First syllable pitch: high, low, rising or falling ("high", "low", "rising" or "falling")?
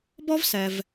high